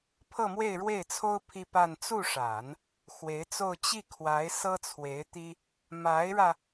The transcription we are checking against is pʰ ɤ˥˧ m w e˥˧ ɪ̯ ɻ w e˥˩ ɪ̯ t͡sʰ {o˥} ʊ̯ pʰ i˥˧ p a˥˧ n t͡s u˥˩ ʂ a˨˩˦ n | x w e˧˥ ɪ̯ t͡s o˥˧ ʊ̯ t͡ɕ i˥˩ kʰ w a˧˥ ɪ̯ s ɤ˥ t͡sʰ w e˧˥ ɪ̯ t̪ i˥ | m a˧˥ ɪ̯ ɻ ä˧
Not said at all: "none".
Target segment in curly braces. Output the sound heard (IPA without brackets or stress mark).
o˥